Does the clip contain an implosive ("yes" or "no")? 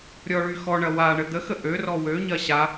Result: no